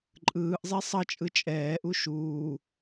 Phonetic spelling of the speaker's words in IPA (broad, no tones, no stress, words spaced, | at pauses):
ǃʼɯːʔzˤi sˤʌt͡ʃʼɯ t͡ʃʼɛːʔu ʃuː